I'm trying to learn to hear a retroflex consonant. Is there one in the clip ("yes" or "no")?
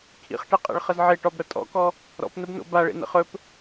yes